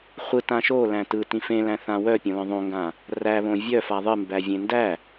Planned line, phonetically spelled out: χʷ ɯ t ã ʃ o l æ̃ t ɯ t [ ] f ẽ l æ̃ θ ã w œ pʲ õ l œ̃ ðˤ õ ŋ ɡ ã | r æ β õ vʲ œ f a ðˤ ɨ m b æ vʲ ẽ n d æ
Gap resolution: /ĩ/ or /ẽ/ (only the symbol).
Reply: ĩ